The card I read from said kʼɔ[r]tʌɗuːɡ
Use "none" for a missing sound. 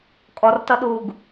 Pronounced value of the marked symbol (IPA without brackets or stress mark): r